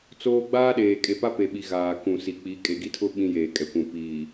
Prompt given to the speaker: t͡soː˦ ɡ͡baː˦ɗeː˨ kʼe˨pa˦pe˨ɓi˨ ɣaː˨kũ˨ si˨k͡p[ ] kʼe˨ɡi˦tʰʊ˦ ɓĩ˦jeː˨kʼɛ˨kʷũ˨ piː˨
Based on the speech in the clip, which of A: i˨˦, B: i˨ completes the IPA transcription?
A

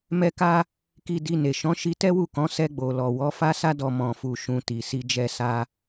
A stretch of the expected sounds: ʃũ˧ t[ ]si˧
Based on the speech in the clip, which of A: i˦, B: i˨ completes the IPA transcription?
B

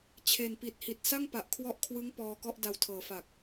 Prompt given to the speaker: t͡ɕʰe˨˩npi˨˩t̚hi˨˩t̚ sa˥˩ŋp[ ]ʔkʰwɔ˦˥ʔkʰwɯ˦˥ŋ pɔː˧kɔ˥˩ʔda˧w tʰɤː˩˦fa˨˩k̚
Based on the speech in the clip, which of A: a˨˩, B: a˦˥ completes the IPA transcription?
A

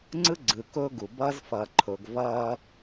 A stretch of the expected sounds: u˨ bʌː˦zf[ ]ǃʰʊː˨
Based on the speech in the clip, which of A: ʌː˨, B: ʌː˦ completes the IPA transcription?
A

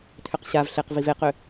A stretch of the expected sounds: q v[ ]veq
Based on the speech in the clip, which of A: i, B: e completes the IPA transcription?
A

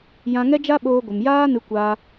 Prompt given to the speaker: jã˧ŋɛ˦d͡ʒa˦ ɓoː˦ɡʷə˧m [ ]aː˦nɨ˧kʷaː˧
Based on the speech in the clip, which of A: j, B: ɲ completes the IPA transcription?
A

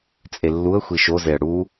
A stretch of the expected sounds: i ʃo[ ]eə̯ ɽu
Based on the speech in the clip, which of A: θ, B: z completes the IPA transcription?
B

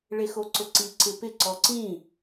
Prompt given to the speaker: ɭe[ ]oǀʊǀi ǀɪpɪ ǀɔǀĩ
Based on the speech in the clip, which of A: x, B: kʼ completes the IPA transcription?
A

